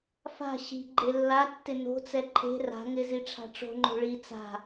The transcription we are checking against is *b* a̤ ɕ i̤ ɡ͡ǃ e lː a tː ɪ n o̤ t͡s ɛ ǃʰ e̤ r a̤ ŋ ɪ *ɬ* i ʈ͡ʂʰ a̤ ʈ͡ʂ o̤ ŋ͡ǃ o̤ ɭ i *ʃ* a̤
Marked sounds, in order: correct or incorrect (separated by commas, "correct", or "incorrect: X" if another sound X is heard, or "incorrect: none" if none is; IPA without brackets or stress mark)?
incorrect: f, incorrect: z, incorrect: t͡s